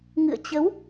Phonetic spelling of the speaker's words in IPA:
ŋ ɨ̰˧˨ ə̯ t͡ɕ ə˨˦ w

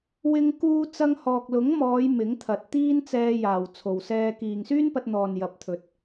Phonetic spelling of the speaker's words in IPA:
w ɪ˧ ŋ k uː˧ t͡s ɐ˧ ŋ h ɔː˨ k̚ l ʊ˨˥ ŋ m ɔː˨˧ j m ɪ˨˥ ŋ t̪ʰ ɐ˨ t̚ t̪ iː˥ n t͡s ɛː˧ j aː˨ w t͡sʰ o˨ w s ɛː˧ k iː˨ ŋ s yː˥ n p ɐ˧ t̚ n̪ ɔː˨ n j ɐ˨˥ p̚ t̪ʰ ɵ˨ t̚

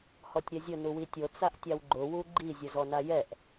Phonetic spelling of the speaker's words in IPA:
h ɔ tʲ ɾʲ ɛ zʲ ʊ n u w i tʲ o t͡s a ʔ tʲ a w ɡ͡ǃ ʊ w u ɡ͡ǃ i zʲ ʊ z ɔ n a j ɛ ʔ

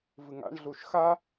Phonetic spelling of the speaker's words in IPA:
v ɨ ŋ a̰ ɳ ɮ u ʃ x a

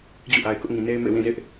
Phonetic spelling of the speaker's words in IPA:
d͡ʑ ṵ˦˨ ʔ a˨ ɪ̯ k ʊ˦ ʔ ŋ ĩ˨ n e˦ ɪ̯ m ḛ˦˨ w ĩ˦˨ z ɪ˦ ʔ

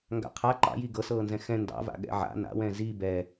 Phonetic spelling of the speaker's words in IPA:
ŋ ɡ a̰ qʰ a ǃ ɑ̰ j i ɡ ɤ s ɤː n z ɛ̃ x ɛ̃ n d ɑ̰ v a̰ ɠ ɛ̰ ʕ a̰ n a̰ w ɛ̃ z i b ɛ

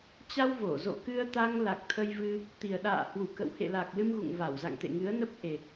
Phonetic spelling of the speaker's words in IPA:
t͡ɕ a˧ w v o˧˩ z o̰˧˨ k ɨ˧ ə̯ t̪ a˧ ŋ l a˨˩ k̚ t̪ʰ ə˧ j v ɨ˧ | t̪ i˨˩ ə̯ ɗ a̰ː˧˨ h w u˧˩ k ə̰˧˨ w h ḛ˧˨ l a˨˩ k̚ l ɨ˧ m ɣ ṵ˧˨ ŋ v a˧˩ w z a̰˧˨ ŋ t̪ ḛ˧˨ ŋ ɨ˨˦ ə̯ n ə˦˥ p̚ ʔ e˨˩

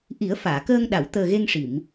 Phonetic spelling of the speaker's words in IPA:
ʔ i˨˩˦ ə̯ f aː˨˩˨ k əː˧ ŋ ɗ a˨˩˨ w t̪ əː˨˩ ɣ e˧ ŋ ʂ i˨˩˨ m

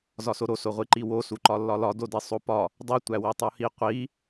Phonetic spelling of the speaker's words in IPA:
z ɒ s o ɾ o s o ʁʷ i ǃ i w o s u ǃ ɒ lː ɒ l ɒ d o d i sˤ o p ɒ | dˤ i tʷ æ w i tˤ u h i qʷ i

